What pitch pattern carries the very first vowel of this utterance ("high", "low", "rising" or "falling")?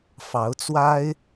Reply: rising